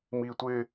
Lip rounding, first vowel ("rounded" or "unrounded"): unrounded